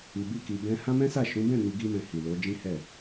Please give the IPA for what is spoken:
i˧ b i˦ k i˧ b ɛ̃˧ h ã˦ m ɛ̃˦ s a˦˨ ʃ ũ˨˦ b ɛ̃˦˨ n i˧ ɡ i˦ m ɛ̃˧ h i˨ l o˨˦ d͡ʒ ĩ˦ h ɛ˦˨

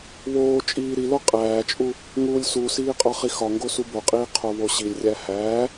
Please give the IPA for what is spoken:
β oː t͡ʃʼ iː ɾ i l o qʼ æː t͡ʃʼ u | ŋ uː lʲ s u s iː qʼ ɒ χ i x ɒ ŋ ɡ o s u b o qʼ iː qʰ o β o ɕ i lʲ rʲ æ h æː

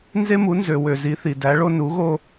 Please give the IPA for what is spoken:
n z e˦ m u˨˥ n z ø˨ w ø˨ z i˨˥ θ i˨ d æ˨˥ ɭ o˦ n u˨˥ ɣ o˦

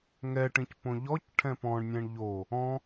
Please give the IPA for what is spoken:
ŋ ɛ ʈ ĩ c p õ ʎ ɔ c ʈʰ ɛ̃ p ɔ̃ ɳ nʲ ɛ̃ ɳ ʎ o | ɔ̃

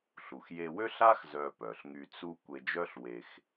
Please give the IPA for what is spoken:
ɬ u˩ x j e˧ w ø˥ ɬ a˥ x z œ˧ p œ˩ ɬ ŋ y˧ t͡s u˥ kʷ e˧ d͡ʒ œ˥ ɬ w e˧ x

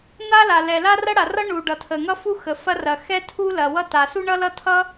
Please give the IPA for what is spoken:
n̪ a˥ l a˩ l ɛ˩ l a˥ r ɐ˥ ɽ a˩ r ʌ˥ ɳ u˩ ɖ ʌ˩ tʰ ə˩ ŋ ʌ˥ f u˥ x ə˩ f ɐ˥ r ɐ˩ x ɛ˥ tʰ u˥ l ɐ˩ w ʌ˥ t a˩ s u˥ ɳ ʌ˥ l ʌ˥ tʰ ʌ˥

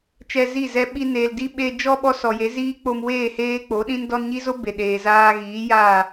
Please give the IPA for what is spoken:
t͡ʃ ɛ˧ z i˦˨ z ɛ˧ ɓ i˧ n eː˨ l d i˦ ɓ eː˧ d͡ʒ ɔ˦ ɓ ɔ˦ s ɔ˨ j e˨˦ z iː˦ k͡p o˧ m w eː˦˨ h eː˧ k͡p o˨˦ ɗ ĩ˦ n d ɔ˧ n ɲ i˦ z o˦ b e˨ ɗ eː˨ z aː˧ ɣ iː˨˦ j aː˦˨

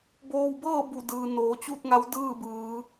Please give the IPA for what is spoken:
b oː˧ w b ɤː˥˨ b u˧˩ d ɯː˩ n oː˩˧ t͡ɕ u˥˨ t̚ ŋ a˧˥ w d ɯː˥˨ b ɯː˩˧

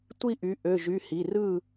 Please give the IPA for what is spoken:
tʷ i˥˨ ʔ y˩˥ ʔ ø˩˧˩ ʒ y˩˧˩ h i˩˧˩ r ɯ˥˨

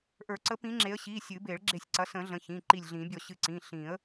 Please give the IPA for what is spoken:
ʔ ə˞˨˩˦ ǀ ə˨˦ p ĩ˨˦ ŋ͡ǁ e˨˦ ə̯ ɕ i˩˧˩ sʲ ɨ˨˩˦ b e˨˩˦ ɭ ɡ͡ǁ e˧˩ sʲ ǀ ɐ˨˦ s ə̃˨˩˦ ɮ ə̃˩˧˩ ç ĩ˩˧˩ ǃ i˧˩ lʲ ɮ ĩ˨˩˦ bʲ ɔ˧˩ ɕ ɨ˧˩ ǀ ĩ˩˧˩ ɬ ĩ˨˩˦ ə̯

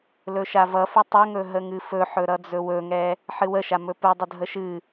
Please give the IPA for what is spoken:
l ɵ ʃ a v ʌ f ɨ tˤ ɵ ŋ ɵ ɦ ə ŋ ɨ f ɵ ħ ɵ ɾ ʌ d͡z ɵ w ɵ ŋ ɛ | ħ ɨ w ə ʃ a m ɵ p ɨ dˤ ə dʱ ə ʃ ɨ

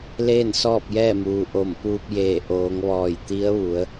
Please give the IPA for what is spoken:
l eː˥˨ n s ɔː˥˨ p̚ j ɛː˥˨ m uː˩ ʔ o˧˩ m p uː˧ p̚ j eː˧˩ ʔ oː˩˧ ŋ ʋ ɔː˧˩ j t̪ i˧˥ ə̯ ʋ u˩˧ ə̯

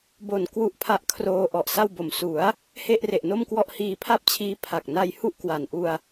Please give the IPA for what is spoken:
b o˨˩ n k w u˦˥ ʔ pʰ a˦˥ ʔ kʰ r oː˧ ʔ ɔ˨˩ ʔ s a˥˩ w b o˨˩ m s u˩˦ a̯ | h e˥˩ ʔ r e˨˩ ʔ n o˥˩ m k w ɔ˥˩ ʔ h iː˧ pʰ a˥˩ p̚ t͡ɕʰ iː˦˥ pʰ a˨˩ k̚ n a˧ j h u˥˩ ʔ k w a˨˩ n ʔ u˧ a̯

